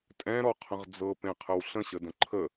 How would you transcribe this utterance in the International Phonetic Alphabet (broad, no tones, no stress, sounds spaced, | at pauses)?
tʼ ɛ̃ ɾ ɔ qʰ ə̃ ʁ d͡z ɤ p ẽ qʰ ə w ɬ ə̃ ɕ ə d ə̃ ǃʰ ə